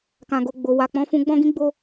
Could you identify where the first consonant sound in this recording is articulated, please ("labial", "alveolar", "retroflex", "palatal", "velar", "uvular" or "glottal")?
velar